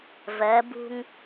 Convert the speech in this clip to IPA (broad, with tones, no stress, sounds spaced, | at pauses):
v ɜ˨˦ b ṳ˦ ŋ